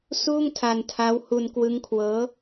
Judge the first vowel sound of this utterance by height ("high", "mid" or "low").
high